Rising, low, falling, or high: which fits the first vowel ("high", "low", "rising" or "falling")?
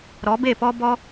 rising